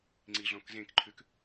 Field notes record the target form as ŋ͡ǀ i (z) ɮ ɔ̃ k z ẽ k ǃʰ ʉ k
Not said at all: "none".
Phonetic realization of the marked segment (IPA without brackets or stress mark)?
none